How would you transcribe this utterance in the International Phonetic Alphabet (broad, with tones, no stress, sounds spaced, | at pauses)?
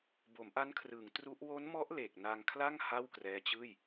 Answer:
b o˩˦ m ʔ a˦˥ n kʰ r ɯː˩˦ ŋ t r u˦˥ ʔ w o˦˥ n m ɔ˦˥ ʔ l e˨˩ k̚ n a˧ ŋ kʰ l a˥˩ ŋ h a˥˩ w k r ɛː˦˥ t͡ɕ ɯː˥˩ j